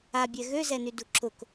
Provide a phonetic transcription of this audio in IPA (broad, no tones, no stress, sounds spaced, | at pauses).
a bʲ ɛ ɣ ø z ɛ n y d u ǁ ʊ k